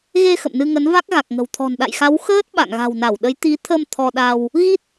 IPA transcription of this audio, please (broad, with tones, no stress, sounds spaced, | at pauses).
ɣ e˧ x ə̰˧˨ m n ɨ˧ ŋ ə˨˦ n v a˦˥ k̚ ɣ a˨˩ k̚ ŋ ə̤˨˩ w t̪ʰ ɔ̤˨˩ n ɗ a̰˧˨ j x a˨˦ w x əː˦˥ t̚ ɓ a̰˧˨ ŋ ɣ a̤˨˩ w n a˧˩ w ɗ ə˨˦ j t̪ i˨˦ t̪ʰ ə˧ m t̪ʰ ɔ˧ ɗ a˧ w | ɣ i˦˥ t̚